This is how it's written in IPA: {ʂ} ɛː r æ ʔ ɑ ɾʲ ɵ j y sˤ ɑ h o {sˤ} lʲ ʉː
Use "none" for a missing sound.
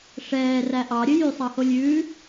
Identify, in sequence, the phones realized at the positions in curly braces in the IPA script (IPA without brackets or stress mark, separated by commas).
ʂ, none